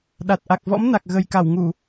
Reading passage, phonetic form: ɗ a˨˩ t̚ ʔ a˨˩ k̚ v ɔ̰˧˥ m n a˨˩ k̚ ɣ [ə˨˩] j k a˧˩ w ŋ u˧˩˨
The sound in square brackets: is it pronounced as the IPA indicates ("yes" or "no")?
yes